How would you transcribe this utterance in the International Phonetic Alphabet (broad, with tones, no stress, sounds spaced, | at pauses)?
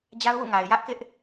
d͡ʑ a˦ ʊ̯ w ṵ˦˨ ŋ a˨ ɪ̯ j ä˦ ʔ k ɪ˦ ʔ